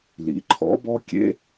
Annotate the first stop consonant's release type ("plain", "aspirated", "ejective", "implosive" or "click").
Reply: click